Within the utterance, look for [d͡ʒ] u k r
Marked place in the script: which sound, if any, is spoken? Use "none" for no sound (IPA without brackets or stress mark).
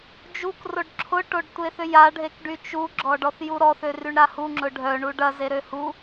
d͡ʒ